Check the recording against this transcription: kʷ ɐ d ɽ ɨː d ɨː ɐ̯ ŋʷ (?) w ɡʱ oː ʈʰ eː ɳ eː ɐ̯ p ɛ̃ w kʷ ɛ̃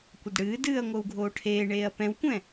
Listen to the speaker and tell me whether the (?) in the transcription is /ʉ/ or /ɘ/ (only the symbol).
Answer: ɘ